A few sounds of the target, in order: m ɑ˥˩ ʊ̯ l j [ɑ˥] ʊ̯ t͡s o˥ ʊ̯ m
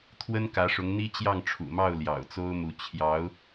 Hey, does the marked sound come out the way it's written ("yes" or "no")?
no